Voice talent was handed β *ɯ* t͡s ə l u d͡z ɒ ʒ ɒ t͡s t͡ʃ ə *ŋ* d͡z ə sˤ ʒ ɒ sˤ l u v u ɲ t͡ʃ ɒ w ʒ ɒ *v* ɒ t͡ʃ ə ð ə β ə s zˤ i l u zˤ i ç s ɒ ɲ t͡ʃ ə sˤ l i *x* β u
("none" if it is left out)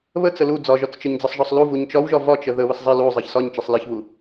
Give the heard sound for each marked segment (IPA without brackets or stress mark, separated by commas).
ə, ɲ, v, ç